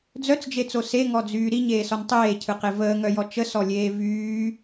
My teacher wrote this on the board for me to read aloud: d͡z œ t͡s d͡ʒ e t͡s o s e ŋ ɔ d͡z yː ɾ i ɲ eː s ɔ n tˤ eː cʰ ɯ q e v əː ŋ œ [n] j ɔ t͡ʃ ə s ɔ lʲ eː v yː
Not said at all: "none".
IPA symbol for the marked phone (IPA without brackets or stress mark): none